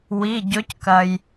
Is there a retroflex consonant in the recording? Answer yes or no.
no